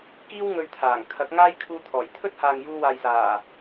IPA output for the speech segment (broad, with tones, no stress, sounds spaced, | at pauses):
k iː˥ w ŋ ɵ˧ ɥ t̪ʰ aː˨˩ ŋ kʰ ɐ˨˥ k̚ ŋ aː˥ j kʰ uː˧ t̪ʰ ɔː˨˩ j t̪ʰ ɵ˥ t̚ h aː˨ ŋ j uː˧ w aː˨ j s aː˨˩